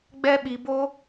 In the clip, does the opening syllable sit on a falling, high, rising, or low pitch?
high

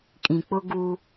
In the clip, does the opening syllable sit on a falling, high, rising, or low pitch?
low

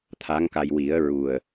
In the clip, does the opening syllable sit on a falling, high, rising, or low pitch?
rising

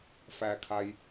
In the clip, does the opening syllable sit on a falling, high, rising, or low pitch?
low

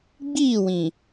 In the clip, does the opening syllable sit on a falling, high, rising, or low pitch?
falling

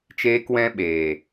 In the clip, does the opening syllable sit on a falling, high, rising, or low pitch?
high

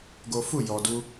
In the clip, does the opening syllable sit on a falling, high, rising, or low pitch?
high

